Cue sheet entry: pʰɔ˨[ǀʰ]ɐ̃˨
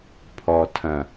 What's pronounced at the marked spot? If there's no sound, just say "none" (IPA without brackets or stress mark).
tʰ